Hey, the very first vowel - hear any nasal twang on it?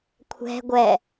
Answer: no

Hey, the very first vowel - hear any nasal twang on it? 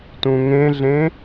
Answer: yes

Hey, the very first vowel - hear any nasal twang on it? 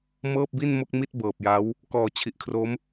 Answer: no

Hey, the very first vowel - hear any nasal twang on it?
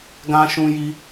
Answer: yes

